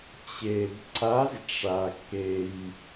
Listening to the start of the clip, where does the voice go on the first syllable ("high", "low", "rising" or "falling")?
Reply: low